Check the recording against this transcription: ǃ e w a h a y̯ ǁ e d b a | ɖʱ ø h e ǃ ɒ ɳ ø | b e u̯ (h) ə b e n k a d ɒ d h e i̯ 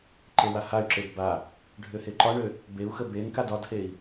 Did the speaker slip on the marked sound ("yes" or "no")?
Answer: yes